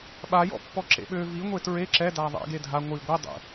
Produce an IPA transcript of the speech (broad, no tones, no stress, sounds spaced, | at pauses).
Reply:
ɓ a j ɔ̰ pː ɔ ǁ ḛ ɓ ø v i ŋʷ e t ɹ e ǁ ɛ d a ðˤ ɛ̰ ɡ e dʱ a ŋʷ i ɡʷ i dˤ ḛ